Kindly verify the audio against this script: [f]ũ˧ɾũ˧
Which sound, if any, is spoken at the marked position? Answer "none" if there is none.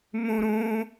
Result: m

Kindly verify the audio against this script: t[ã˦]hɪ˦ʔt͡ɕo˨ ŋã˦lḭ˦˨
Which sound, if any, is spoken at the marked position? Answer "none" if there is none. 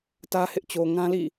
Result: ä˦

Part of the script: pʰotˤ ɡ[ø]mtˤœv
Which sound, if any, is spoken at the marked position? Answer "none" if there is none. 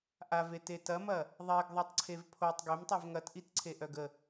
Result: ø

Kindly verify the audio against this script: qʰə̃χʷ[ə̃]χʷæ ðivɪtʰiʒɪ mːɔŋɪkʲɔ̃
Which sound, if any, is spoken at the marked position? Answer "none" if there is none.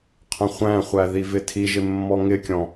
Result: æ̃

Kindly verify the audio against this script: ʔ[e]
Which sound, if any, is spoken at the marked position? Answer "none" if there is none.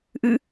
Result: ɨ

